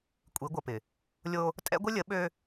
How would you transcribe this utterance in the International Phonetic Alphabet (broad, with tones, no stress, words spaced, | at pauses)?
kʷʼi˨˦ɡʷʌ˨pɪ˨ | lʲo˦ | tʼɛ̰˦ɡʷɪ˦lʲə˨˦ ɓø˦